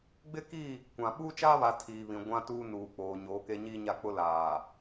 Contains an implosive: yes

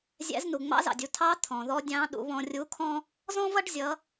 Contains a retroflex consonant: yes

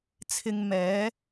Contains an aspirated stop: yes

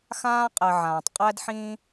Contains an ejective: yes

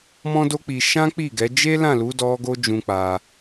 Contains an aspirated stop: no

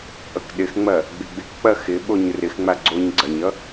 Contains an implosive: yes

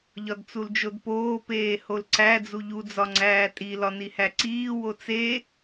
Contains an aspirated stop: no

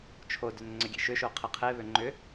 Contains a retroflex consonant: no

